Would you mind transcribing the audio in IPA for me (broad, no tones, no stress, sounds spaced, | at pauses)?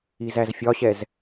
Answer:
i z æ z fʲ ɒ ɕ ɛ z